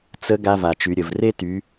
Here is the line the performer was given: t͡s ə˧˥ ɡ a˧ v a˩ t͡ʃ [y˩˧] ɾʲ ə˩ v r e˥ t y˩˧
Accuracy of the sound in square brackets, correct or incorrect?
correct